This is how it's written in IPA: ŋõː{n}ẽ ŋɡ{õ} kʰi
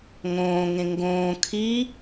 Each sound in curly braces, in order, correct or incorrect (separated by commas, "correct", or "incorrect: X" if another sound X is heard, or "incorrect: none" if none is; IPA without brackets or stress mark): incorrect: ŋ, incorrect: õː